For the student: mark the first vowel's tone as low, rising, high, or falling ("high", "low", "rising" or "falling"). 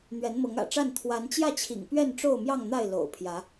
rising